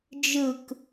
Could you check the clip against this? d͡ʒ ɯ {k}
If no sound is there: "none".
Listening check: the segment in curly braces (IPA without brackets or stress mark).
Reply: k